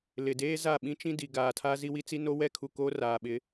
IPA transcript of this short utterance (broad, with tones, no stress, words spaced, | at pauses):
lɪ˨deː˦za˦˨ ɓĩ˦t͡ʃĩ˦ di˨ ɡaː˨tʰa˦ zi˦wi˦t͡si˦no˦ wɛ˦kʰu˨ koː˦raː˨ɓɪ˨˦